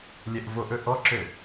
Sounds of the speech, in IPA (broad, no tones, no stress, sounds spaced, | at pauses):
lʲ ɛ ʔ v o ʔ ɵ ʔ ɔ ǁ ø